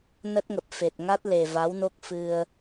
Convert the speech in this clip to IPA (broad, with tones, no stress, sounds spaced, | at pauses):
n ə˦˥ t̚ ŋ ə˨˩ p̚ f e˨˩ t̚ ŋ a˦˥ t̚ l e˨˩ v a˨˦ w n o˦˥ k̚ f ɨ˧ ə̯